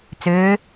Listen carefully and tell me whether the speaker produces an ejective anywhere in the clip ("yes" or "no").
no